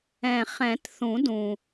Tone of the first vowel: low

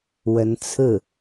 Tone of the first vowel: rising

